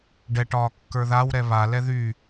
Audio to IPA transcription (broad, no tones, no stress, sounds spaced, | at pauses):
ɖ ɛ ʈ ɒː kː ə˞ ð a w ɾ ɛ β a l ɛ ð yː